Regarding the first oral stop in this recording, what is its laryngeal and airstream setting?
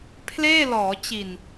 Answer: aspirated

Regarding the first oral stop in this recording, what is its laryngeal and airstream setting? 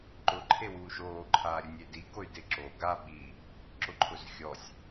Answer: click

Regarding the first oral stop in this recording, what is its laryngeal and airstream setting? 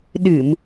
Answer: implosive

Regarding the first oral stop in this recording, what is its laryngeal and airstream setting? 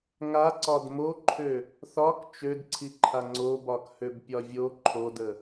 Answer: click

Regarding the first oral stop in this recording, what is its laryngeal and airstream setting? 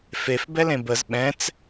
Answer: plain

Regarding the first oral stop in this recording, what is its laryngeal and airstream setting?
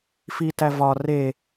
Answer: plain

